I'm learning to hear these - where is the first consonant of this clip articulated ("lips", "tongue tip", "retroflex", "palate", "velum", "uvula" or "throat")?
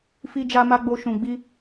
lips